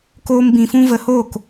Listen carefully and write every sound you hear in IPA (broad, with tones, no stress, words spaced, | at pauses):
koː˦mbĩ˧fũ˦ və˧hoː˦˨k